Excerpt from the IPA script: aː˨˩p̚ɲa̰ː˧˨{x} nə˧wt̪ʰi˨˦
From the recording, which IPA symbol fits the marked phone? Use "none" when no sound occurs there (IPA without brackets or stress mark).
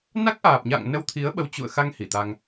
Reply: ŋ